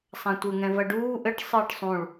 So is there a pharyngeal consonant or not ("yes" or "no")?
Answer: no